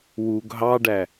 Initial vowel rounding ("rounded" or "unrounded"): rounded